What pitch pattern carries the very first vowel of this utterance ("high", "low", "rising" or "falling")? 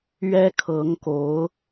high